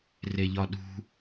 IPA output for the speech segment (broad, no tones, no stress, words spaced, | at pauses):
reʎɒɗṳ